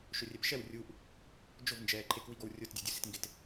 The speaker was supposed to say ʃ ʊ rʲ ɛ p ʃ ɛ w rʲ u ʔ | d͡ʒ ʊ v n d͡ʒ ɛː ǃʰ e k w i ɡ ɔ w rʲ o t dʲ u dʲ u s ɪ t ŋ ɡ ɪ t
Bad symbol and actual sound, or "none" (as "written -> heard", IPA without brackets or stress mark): none